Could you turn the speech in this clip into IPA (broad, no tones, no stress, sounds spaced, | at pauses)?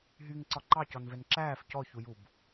ɦ y ŋ ǀ ɒ ǃ ɑ c ɔ n v ɛ n ǁ æː f c ɔ ç u j u b